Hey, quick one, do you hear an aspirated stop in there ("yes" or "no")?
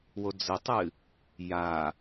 no